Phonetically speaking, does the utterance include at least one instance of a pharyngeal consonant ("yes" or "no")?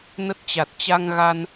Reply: no